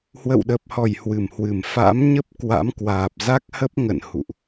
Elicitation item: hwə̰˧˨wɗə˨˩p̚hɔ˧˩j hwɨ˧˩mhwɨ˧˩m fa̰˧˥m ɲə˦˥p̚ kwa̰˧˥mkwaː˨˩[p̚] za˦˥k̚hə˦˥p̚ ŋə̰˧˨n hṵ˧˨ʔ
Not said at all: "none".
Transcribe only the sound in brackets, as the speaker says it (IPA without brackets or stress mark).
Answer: p̚